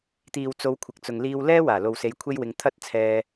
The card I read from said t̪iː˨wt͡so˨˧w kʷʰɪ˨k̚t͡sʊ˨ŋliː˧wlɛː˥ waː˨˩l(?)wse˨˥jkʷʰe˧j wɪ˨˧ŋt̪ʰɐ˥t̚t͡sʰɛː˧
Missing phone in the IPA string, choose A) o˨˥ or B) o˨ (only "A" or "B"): B